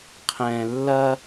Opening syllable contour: low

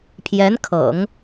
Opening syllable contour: rising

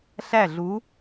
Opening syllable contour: falling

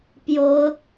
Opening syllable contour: rising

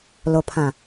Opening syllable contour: low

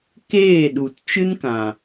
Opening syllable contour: falling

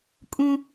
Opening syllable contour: high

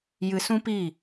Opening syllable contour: low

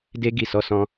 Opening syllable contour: high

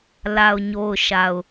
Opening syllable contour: low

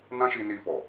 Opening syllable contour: high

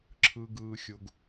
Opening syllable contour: high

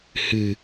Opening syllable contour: low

